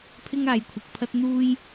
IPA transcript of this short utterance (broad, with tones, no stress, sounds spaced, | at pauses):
pʰ ɪ˥ ŋ aː˨˧ j kʷʰ ɐ˨ k̚ pʰ ɐ˥ t̚ n̪ uː˥ j